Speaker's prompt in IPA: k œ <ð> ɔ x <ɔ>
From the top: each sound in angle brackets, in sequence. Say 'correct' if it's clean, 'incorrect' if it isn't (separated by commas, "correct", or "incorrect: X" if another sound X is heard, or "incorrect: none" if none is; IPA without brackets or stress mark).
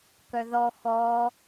correct, correct